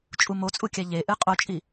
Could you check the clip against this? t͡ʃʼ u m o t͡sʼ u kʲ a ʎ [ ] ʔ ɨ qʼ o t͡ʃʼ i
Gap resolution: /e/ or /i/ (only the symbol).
e